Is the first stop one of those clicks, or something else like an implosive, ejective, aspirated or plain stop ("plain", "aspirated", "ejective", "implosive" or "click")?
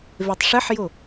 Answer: plain